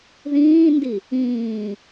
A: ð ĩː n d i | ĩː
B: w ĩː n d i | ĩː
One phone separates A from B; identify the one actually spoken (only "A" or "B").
A